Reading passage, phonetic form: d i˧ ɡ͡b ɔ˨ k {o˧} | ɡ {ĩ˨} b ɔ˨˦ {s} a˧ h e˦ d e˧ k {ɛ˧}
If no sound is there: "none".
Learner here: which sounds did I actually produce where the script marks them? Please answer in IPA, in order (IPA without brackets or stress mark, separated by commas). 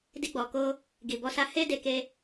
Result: o˧, i˨, s, e˧